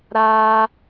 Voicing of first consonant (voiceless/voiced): voiced